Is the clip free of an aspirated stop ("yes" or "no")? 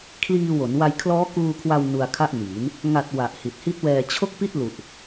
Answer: no